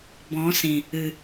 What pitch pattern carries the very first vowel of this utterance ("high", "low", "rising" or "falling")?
rising